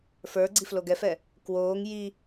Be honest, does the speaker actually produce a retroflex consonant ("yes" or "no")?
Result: no